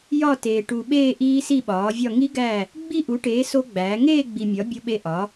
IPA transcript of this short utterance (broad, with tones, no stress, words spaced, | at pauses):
jɒ˥˧teː˨ ʈu˨ɓeː˥˧ ʔiː˦˥si˥˧ɓɒː˩˥vʲɒ˥˧ ŋi˦˥ ɡæ˥˧ | ɡ͡bi˥˧ʔu˩˥ʈeː˩˥ so˦˥ɡ͡bæː˩˥ ŋeː˥˧ɡ͡bi˨mʲɒ˩˥ bʲo˦˥ɓe˦˥ ʔɒ˩˥